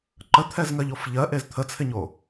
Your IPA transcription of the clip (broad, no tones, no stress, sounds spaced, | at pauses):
ǃ ə t̪ʰ ɛ z ŋ ɜ ʎ o f ʎ ɜ ʔ e z t̪ʰ ə t͡sʰ ɪ ɲ o